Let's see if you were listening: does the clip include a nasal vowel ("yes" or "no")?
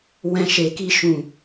yes